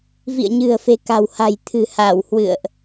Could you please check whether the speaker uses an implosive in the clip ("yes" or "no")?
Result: no